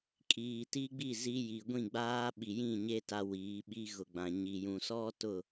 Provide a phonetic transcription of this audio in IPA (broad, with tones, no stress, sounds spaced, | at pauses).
kʼ iː˨ t i˦ ɡ͡b i˦˨ z i˦ j i˨ ɡʷ ĩ˦˨ ɡ͡b aː˦ ɓ i˨ j ĩ˦˨ ɲ e˦ t a˦ w iː˨˦ ɓ i˦ ɣ ʊ˨ ɡ͡b ã˨ ɲ i˨ j ũ˨ s ɔ˦ t ʊ˦˨